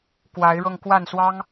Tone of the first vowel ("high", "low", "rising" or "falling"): rising